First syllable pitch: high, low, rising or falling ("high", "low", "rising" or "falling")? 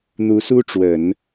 rising